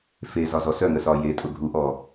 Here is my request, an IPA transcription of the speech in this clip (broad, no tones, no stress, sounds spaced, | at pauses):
f e z ɒ z ɔ s œ ŋ ə s ɒ j e tʼ ʊ ɡʱ u ʔ ɔ